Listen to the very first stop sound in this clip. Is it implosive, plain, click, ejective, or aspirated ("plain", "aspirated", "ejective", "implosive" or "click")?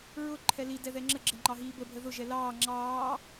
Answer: click